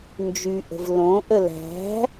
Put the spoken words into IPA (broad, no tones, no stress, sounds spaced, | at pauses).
n d͡ʒ y ʔ ə̤ v l õ ʔ ə l æ̤